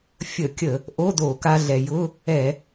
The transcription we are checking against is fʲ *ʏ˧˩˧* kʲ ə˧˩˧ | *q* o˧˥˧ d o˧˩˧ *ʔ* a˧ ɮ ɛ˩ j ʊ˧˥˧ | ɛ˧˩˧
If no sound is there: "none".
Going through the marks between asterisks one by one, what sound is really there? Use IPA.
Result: ə˧˩˧, ʔ, k

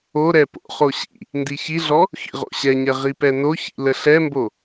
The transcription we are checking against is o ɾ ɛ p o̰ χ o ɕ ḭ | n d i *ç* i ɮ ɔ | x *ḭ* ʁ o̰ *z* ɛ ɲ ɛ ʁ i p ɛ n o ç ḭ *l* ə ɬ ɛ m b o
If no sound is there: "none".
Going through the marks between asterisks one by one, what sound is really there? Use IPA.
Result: ç, ḭ, ɕ, l

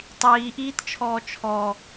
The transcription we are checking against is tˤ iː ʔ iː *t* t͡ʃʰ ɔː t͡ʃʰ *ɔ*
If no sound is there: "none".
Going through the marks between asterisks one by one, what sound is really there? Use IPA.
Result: t, ɔ

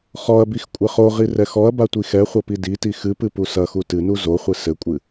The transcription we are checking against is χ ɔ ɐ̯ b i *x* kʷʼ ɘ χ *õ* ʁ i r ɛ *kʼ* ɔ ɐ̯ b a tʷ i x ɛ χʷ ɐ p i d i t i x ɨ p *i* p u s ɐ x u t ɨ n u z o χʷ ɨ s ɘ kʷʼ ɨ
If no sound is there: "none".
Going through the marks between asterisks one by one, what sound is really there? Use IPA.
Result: x, o, x, ɨ

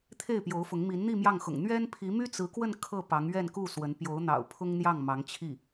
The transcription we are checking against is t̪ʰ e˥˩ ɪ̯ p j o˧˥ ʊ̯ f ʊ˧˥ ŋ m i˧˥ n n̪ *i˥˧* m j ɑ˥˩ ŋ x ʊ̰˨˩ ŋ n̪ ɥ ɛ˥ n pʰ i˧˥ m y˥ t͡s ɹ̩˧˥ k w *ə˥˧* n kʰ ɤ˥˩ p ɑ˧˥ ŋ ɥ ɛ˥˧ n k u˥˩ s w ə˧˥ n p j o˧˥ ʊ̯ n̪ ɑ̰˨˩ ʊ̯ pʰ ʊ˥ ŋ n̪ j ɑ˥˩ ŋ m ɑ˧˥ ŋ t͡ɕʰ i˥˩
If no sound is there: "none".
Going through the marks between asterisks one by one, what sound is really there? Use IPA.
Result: i˥˧, ə˥˧

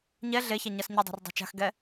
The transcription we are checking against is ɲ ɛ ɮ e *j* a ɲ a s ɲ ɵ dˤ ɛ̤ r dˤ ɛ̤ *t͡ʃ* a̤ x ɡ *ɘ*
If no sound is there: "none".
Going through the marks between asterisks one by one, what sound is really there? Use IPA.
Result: ç, t͡ʃ, ɛ

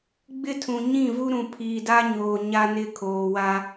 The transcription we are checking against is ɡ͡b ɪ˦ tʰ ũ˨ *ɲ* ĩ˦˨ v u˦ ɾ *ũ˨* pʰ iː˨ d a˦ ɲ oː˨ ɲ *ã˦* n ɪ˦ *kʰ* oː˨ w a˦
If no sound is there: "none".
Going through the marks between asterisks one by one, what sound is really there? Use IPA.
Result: ɲ, ũ˨, a˦, kʰ

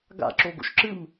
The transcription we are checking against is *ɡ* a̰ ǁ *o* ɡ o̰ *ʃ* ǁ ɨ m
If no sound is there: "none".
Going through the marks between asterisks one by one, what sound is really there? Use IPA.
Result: ɡ, o, ʃ

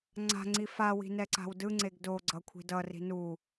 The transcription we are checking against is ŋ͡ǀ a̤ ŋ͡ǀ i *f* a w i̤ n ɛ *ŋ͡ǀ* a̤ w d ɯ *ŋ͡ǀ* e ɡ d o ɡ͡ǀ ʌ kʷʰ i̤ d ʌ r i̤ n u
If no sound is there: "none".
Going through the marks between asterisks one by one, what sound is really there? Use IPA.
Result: f, ǀ, ŋ͡ǀ

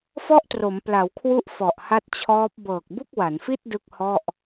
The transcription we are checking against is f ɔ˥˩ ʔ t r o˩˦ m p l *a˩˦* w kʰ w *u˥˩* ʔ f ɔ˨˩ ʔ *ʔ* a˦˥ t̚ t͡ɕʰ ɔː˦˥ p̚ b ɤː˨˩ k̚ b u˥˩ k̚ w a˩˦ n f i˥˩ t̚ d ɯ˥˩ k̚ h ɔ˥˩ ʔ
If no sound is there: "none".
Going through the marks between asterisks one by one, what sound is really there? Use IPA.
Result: a˩˦, u˦˥, h

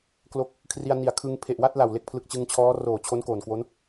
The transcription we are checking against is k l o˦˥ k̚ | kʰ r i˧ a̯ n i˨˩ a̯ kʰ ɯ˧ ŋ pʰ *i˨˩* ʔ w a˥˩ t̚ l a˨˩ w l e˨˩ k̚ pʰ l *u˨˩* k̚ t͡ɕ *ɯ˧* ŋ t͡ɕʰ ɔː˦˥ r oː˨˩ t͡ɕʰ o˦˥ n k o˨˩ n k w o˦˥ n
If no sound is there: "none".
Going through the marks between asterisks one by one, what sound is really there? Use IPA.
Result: e˨˩, ɯ˨˩, ɯ˧

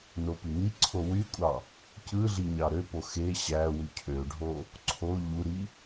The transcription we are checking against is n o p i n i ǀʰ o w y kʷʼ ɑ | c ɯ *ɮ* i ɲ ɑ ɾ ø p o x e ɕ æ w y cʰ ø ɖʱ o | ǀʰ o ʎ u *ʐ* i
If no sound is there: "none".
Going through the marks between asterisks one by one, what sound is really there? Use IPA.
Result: ɮ, ɾ

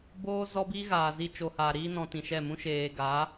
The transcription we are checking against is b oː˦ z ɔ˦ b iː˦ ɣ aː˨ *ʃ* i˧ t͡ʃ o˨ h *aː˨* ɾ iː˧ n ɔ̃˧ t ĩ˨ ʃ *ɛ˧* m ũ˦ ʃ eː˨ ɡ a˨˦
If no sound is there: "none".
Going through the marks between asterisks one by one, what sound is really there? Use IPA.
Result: z, aː˨, ɛ˦˨

